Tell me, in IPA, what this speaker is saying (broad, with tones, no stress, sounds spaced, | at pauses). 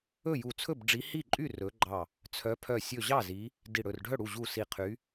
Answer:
ɵ˥˩ j u˧˩ t͡sʰ ɵ˥˩ b ɖ͡ʐ i˨˦ h i˥˩ ǃʼ y˥˩ r ɵ˨˦ ɡ͡ǃ ɑ˧˩ | t͡sʰ œ˨˦ pʰ œ˧˩ sʲ ɵ˧˩ ʑ ɑ˥˩ z i˨˦ | d i˧˩ ɽ ɵ˧˩ r ɖʱ œ˥˩ ɽ u˧˩ ʑ u˧˩ s i˧˩ qʰ y˨˦